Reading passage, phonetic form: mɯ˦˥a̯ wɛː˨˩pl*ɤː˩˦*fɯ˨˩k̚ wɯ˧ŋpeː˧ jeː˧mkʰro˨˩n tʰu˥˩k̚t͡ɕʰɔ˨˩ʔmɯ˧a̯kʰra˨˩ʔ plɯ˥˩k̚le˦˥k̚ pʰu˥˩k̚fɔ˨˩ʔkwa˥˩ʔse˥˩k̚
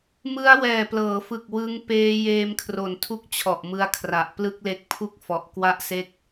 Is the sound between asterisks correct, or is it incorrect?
correct